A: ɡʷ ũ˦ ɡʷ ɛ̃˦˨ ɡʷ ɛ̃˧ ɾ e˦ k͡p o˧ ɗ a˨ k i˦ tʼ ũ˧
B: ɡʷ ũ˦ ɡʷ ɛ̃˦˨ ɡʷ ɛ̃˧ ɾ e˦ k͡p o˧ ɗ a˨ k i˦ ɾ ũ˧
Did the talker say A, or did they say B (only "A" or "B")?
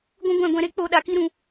B